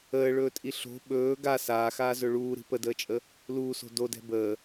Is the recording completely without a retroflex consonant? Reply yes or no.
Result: no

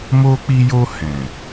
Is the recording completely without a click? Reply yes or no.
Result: yes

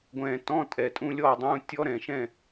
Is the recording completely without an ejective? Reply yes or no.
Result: no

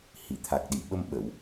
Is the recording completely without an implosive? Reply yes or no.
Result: no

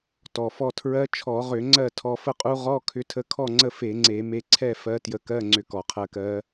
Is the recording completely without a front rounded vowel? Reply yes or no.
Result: no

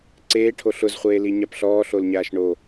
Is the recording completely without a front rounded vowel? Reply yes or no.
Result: yes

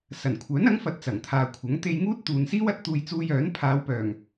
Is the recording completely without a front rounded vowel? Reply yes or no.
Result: no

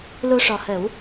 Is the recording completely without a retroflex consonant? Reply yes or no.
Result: no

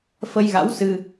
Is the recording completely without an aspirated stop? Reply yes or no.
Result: yes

